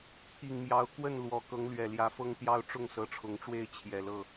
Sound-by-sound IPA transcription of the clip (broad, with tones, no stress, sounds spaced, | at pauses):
t̪ʰ i˨˩ ŋ m j ɑ˨˦ ʊ̯ k w ə˥˨ n l w ɔ˨˦ k ɤ˨˦ ŋ l ɥ ɛ˨˩ l j ä˨˦ f ɤ˦ ŋ t̪ j ɑ˦ ʊ̯ ʈ͡ʂ ʊ˥˨ ŋ s ɤ˨˦ ʈ͡ʂʰ ʊ˨˦ ŋ ʈ͡ʂ w e˥˨ ɪ̯ t͡ɕʰ j ɛ˨˩ l ɤ˥˨